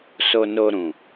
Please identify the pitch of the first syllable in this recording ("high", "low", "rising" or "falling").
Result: low